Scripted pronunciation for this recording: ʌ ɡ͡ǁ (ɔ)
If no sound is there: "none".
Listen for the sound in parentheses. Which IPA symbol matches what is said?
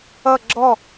ɔ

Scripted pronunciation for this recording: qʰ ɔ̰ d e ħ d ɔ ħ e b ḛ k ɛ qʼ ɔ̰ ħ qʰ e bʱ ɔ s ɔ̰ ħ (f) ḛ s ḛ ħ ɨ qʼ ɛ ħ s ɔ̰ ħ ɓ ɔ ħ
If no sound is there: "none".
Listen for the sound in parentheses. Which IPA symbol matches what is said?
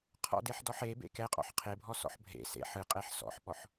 bʱ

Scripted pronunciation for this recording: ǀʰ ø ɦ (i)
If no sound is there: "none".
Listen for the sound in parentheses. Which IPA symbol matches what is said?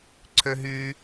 y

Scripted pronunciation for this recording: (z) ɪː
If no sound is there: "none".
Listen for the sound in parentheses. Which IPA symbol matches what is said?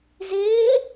z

